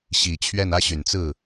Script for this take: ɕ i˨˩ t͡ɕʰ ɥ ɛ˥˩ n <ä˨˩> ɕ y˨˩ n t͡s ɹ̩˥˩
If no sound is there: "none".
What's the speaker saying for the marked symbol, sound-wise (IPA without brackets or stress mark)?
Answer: ä˥